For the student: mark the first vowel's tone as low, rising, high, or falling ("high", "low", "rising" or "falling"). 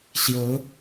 rising